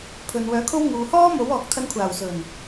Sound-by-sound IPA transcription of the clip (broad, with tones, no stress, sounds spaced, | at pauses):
pʰ ɵ˨ n w œː˨˥ kʰ o˥ w ŋ uː˨ h ɔː˥ m o˨˥ w ɔː˨ k̚ t̪ʰ ɐ˧ n kʷʰ aː˨˩ w s ɵ˨˩ n